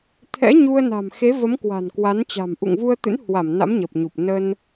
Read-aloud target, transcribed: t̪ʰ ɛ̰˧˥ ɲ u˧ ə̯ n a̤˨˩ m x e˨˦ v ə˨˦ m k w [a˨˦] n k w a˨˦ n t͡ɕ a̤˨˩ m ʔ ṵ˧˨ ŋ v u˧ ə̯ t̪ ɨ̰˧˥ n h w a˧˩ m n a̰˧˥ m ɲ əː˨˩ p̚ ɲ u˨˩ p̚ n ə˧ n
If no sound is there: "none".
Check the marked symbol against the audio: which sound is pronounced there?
a̤˨˩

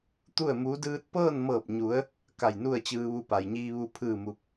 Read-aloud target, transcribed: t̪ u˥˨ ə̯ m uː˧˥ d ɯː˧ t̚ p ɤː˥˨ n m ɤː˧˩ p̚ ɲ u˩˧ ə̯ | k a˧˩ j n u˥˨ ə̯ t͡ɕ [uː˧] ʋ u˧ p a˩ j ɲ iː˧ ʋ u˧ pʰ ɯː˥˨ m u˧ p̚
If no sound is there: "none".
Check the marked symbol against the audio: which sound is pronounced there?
ɯː˧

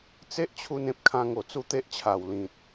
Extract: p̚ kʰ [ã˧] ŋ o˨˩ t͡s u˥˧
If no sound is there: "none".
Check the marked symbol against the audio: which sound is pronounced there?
ã˧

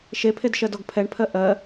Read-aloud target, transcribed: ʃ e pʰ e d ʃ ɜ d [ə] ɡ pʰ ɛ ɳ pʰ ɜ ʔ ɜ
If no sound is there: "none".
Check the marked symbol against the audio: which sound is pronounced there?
ɔ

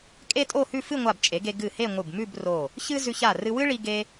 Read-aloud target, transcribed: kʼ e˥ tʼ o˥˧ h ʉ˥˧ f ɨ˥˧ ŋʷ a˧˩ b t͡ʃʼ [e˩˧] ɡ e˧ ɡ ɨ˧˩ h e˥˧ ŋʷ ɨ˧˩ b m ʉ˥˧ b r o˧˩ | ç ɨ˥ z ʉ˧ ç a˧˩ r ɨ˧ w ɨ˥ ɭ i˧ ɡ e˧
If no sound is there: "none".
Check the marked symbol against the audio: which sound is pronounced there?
e˩˧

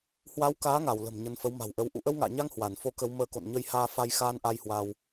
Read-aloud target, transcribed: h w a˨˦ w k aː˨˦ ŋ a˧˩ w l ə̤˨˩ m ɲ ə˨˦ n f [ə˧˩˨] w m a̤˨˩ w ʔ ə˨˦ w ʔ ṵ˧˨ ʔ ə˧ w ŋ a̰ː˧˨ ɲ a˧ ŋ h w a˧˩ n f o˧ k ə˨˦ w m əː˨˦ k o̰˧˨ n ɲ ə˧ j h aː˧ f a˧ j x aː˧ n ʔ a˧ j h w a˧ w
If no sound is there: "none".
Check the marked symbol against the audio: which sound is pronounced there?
ə˨˦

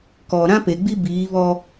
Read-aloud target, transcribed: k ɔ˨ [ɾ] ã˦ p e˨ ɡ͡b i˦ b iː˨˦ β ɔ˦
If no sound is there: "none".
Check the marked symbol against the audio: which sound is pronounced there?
ɾ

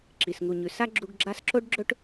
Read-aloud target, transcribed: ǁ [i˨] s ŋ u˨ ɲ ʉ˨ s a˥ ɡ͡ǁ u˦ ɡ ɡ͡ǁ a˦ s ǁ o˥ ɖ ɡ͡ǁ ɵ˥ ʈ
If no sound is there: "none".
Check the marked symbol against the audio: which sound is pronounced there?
i˨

